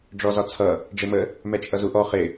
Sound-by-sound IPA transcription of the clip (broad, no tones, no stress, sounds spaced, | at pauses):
ɖ͡ʐ ɔ z ɒ t͡sʰ ʌ | ɖ͡ʐ ɪ m ə | m ɛ t͡ʃʼ ʌ z u ʔ ɔ χ ɪ